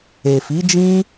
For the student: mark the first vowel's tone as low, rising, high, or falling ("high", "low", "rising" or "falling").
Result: low